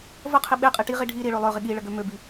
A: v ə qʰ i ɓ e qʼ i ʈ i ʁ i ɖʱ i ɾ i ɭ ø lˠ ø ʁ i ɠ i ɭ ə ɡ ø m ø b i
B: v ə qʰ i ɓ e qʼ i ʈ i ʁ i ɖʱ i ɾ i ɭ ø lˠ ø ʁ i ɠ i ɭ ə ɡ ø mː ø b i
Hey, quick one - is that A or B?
A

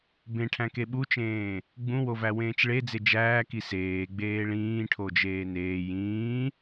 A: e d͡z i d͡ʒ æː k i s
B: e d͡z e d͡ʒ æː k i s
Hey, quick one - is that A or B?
B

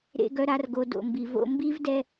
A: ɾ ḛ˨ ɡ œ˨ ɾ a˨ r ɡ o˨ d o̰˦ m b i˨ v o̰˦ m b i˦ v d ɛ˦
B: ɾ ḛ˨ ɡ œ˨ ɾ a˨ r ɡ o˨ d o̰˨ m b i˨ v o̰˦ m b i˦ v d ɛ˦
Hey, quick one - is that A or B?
B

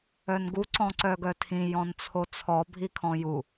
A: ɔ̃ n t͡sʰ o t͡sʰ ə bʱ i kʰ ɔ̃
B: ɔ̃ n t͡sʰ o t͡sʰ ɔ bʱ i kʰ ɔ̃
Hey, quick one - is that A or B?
B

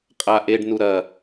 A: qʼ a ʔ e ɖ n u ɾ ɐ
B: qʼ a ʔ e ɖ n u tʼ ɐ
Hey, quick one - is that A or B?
A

